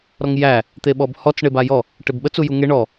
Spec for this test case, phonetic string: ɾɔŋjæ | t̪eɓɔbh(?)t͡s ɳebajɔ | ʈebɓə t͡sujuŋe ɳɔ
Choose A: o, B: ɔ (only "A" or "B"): B